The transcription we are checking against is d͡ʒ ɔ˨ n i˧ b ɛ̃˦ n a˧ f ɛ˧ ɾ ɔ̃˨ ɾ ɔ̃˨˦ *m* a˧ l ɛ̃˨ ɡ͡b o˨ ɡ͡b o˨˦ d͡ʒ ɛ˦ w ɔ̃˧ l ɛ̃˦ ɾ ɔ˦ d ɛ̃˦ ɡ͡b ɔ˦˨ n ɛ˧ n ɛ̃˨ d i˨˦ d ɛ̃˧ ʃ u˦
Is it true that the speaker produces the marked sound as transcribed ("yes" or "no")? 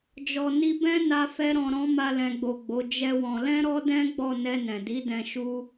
yes